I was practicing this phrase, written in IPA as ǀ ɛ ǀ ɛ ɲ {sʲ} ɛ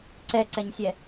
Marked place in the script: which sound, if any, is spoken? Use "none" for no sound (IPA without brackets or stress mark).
sʲ